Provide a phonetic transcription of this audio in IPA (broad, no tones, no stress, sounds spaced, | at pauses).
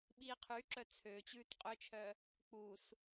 ɓ iː qʰ y ǁ œ t͡sʰ ø t͡ɕ ʉː t qʼ ø t͡ʃʰ œ | k͡p u s